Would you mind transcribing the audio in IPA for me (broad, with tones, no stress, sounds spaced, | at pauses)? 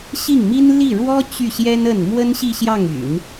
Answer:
ɕ i˥˩ ŋ m i˥ n l i˥˩ ɻ w ɔ˥ t͡ɕ y˥˩ ɕ j ɛ˥ n ə˥˩ n m w ə˥ n ɕ i˥˧ ɕ j ɑ˥˩ ŋ y̰˨˩˦ n